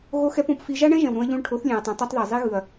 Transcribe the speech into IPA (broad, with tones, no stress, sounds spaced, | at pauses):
ɣ o˦ x ɛ˦ p õ˧ p f i˧ ʒ a˦ ɳ ɛ̃˦ ʒ ɛ̃˨ w ɾ ũ˧ ɐ̯ ʎ ũ˧ ɭ ʈʰ o˨˦ θ lʲ ɛ̃˨ ɐ̯ tˤ ũ˨ tˤ u˦ tˤ ð e˨ zˤ e˦ ɣ ɯ˨ ɐ̯